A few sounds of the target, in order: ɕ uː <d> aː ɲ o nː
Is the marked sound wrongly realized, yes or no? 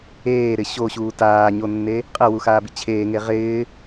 yes